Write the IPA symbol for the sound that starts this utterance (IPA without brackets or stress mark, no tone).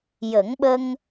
j